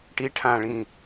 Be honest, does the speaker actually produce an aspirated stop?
yes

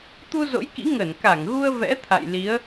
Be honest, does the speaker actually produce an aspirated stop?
yes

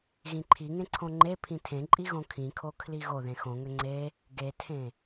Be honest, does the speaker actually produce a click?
yes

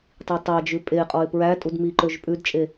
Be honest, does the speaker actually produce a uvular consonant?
yes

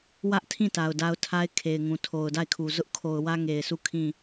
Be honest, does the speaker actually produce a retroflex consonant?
no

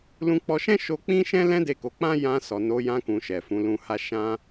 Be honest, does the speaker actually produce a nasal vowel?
yes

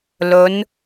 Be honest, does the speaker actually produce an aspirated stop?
no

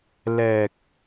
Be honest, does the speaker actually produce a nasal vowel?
no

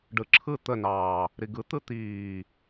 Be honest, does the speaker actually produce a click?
yes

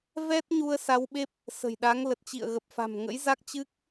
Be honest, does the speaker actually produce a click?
no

